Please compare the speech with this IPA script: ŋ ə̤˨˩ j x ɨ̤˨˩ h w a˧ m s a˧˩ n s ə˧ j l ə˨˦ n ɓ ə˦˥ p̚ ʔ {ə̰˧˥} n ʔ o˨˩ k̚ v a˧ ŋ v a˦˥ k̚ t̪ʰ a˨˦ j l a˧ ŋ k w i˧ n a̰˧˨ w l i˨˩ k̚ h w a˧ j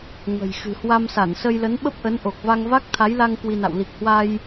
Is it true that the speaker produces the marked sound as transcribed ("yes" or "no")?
no